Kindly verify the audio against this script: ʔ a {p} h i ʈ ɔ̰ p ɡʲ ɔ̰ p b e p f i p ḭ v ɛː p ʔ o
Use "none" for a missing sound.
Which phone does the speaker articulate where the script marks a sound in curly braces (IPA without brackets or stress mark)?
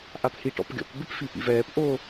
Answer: p